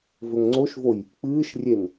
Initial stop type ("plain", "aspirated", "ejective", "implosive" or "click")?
click